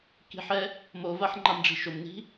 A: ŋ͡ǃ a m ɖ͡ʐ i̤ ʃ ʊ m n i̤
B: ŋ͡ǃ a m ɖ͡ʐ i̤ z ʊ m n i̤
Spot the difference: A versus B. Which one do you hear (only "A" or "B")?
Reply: A